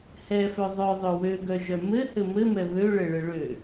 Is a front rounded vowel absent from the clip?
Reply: no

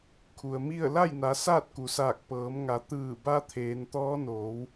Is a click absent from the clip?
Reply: yes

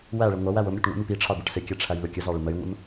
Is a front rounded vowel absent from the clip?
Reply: yes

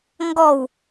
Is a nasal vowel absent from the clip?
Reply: yes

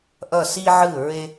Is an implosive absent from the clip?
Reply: yes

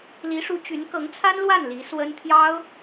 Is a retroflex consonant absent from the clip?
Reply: no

